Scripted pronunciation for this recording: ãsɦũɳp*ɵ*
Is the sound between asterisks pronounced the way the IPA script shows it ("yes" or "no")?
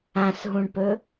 yes